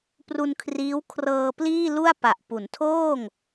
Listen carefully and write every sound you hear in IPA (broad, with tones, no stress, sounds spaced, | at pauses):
p r u˧ n kʰ r iː˦˥ w kʰ r ɤː˧ p l iː˥˩ l u˥˩ a̯ p a˨˩ ʔ p u˩˦ n tʰ oː˥˩ ŋ